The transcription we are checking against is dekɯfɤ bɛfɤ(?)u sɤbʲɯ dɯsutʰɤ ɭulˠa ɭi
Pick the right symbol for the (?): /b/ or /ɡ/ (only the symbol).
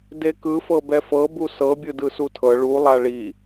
b